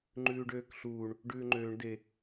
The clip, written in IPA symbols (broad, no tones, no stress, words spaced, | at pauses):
ŋ͡ǃʉːɖøːkɬuːɳ | ɖʉːŋ͡ǃøːɳ de